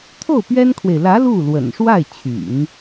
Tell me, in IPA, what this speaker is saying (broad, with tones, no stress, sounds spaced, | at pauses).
t̪ʰ o˥˩ ʊ̯ p ɥ ɛ˥ n kʰ w e˨ ɪ̯ l ä˧˥ l u˥˩ l w ə̰˨˩ n ʂ w a˥˩ ɪ̯ t͡ɕʰ y̰˨˩˦ n